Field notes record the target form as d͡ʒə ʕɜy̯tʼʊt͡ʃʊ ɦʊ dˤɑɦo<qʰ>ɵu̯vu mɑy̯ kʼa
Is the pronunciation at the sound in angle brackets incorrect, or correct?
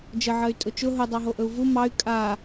incorrect